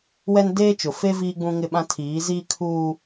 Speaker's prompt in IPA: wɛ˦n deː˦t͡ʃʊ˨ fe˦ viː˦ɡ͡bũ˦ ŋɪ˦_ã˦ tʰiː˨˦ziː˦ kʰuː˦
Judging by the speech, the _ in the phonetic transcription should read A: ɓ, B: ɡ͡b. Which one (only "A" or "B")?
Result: A